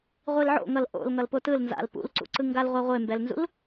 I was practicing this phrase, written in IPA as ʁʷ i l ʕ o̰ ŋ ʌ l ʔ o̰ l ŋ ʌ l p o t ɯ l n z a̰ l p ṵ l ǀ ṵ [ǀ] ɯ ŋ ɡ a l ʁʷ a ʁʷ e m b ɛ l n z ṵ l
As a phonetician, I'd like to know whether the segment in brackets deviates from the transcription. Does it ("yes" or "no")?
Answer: no